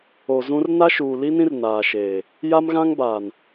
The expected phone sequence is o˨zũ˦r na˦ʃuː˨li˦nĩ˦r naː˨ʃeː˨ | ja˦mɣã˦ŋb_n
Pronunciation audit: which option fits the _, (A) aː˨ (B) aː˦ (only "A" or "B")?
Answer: A